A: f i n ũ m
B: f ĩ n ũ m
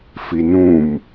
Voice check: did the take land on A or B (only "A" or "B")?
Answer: A